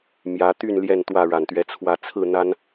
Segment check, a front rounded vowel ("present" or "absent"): present